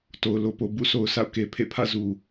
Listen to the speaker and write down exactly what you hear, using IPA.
t o˨ ʊ̯ l o˨ p o˨ b ṵ˦˨ sʰ o˨ ʊ̯ sʰ a̰˦˨ ʊ̯ k e˨ pʰ ḛ˦˨ pʰ ä̰˦˨ z u˨

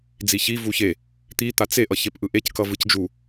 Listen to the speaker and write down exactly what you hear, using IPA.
d͡z i ç i v u ç e | t̪ i t̪ a t͡s e ʔ ʌ ç e p ʔ ɯ ʔ e c k ʌ v ɯ c d͡ʒ u

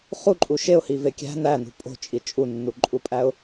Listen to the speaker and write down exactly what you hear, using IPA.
χ u ǃʼ u ʃ e ʊ̯ h i v e kʲ æ̤ n æ n ṳ pʼ o̤ t͡ʃʼ i t͡ʃʼ u nː u ǃʼ u pʼ æ ʊ̯

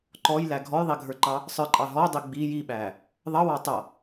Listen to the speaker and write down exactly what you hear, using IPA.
ǃ ɔ j l æ ɡʱ ɔ j ðˤ i ɡʱ ə˞ ǃ ɑ | sˤ ə˞ ǃʼ ɑ ɦ ɔ dˤ i ɡ͡b i j i ɓ æ | ðˤ ʌ w ɑ tˤ ʌ

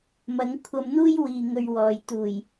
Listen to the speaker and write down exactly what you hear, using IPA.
m ɐ˨˥ ŋ kʷʰ ɐ˧ m n̪ uː˥ j w iː˨ ŋ ɵ˧ ɥ w ɔː˨ j t̪ uː˨˩ j

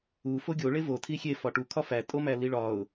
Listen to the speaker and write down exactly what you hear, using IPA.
u f o ɡʲ o ɭ e v o tʰ i xʲ e f ɒ ʈ u kʰ ɒ f æ tʼ o m æ l i ɭ ɒ ʊ̯

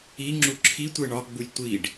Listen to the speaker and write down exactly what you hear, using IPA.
i ŋ͡ǁ u ǁʰ i tʷ e ɳ ɒ ɡ͡b u lʲ tʷ i ɖ

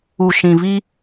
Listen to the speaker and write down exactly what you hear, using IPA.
u˨ ʃ ĩ˨ v i˦

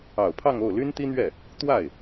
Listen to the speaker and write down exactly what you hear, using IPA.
ɑ˨˩ ʊ̯ pʰ ɑ˥˧ ŋ o˥˩ ʊ̯ l y˥ n t̪ i˥ n̪ ɥ ɛ˥˩ | t̪ w a˥˩ ɪ̯

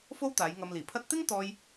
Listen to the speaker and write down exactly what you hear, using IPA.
f o˥ w t̪ aː˨˧ j ŋ ɐ˧ m l iː˨˩ pʰ ɐ˥ t̚ t̪ ɪ˥ ŋ t̪ ɔː˥ j

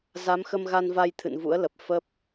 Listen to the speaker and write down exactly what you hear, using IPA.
z a˨˦ m x ə˧ m ɣ a˧ n v a˧ j t̪ʰ ɨ̰˧˨ n v ṵ˧˥ ə̯ l ə˨˩ p̚ f ə˦˥ p̚

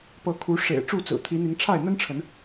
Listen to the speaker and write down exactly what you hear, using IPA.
p ɤ˨˦ kʰ u˨˦ ʂ ḛ˨˩ ɪ̯ ʈ͡ʂ u˥˨ t͡s ɹ̩˨˩ t̪ʰ i˨˦ n̪ i˨˦ ŋ ʈ͡ʂʰ a˥˨ ɪ̯ n̪ ə˦ n ʈ͡ʂʰ ə˨˦ n

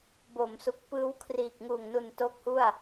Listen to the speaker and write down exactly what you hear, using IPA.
b o˩˦ m s u˨˩ k̚ p ɯː˦˥ w kʰ r iː˨˩ k̚ ŋ uː˨˩ ŋ n u˨˩ n t o˦˥ k̚ h u˥˩ a̯

